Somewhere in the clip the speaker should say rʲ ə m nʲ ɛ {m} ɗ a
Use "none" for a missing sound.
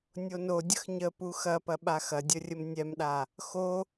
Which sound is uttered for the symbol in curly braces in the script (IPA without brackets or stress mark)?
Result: m